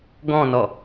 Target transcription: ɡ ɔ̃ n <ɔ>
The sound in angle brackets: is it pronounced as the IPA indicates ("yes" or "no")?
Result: yes